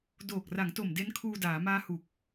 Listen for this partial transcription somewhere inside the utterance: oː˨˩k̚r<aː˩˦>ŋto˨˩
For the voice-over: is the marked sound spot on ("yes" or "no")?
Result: no